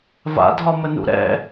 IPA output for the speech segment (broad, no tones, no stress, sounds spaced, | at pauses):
v a̰ dʱ ɒ m ə n ṵ ɾ ɛ̰